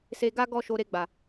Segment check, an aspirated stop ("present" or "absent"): absent